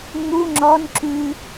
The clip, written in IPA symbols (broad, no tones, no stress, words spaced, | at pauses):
ŋ͡mu ŋ͡ǁɔn ǁʉ